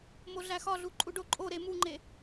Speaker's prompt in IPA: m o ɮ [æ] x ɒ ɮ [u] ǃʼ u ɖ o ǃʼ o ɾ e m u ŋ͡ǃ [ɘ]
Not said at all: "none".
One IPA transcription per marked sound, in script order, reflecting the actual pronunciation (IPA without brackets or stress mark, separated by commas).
æ, u, e